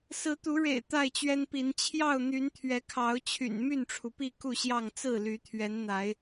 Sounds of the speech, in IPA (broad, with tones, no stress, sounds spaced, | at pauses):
s ɹ̩˨˦ t̪ u˨˦ ɻ ḛ˨˩ ɪ̯ t̪ a˥˨ ɪ̯ t͡ɕ ɥ ɛ˦ n p i˨˦ n t͡ɕʰ j ɑ˥˨ ʊ̯ n̪ y˨˦ n t̪ʰ ɥ ɛ˨˦ kʰ ɑ˨˦ ʊ̯ t͡ɕʰ y̰˨˩ n m y˥˨ n ʈ͡ʂʰ u˩ p i˥˨ k u˥˨ ɕ j ɑ˥˨ ŋ t͡s ɹ̩˥˨ l y˨˦ t̪ʰ ɥ ɛ˨˦ n n̪ a˨˦ ɪ̯